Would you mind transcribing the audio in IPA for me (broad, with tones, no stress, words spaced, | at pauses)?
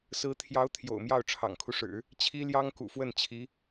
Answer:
sɹ̩˧˥t̪ʰjɑ˧˥ʊ̯ t̪ʰjo̰˨˩ʊ̯mjɑ˥˩ʊ̯ ʈ͡ʂʰɑ̰˨˩ŋkʰu˦ʂɻ̩˨˩˦ | t͡ɕʰi˥ljɑ˥ŋ kṵ˨˩fwə˥˩n t͡ɕʰi˧˥